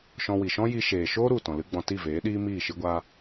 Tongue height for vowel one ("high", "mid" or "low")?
mid